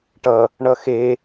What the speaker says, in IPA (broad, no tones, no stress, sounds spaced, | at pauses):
ʈ ʌ | ɳ ʌ x e